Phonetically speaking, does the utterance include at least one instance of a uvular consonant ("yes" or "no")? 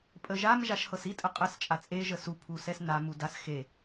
yes